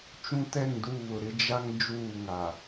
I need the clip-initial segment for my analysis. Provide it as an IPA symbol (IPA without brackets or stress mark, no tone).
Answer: t͡ʃ